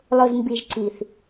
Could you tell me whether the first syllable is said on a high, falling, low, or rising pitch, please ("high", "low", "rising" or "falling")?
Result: low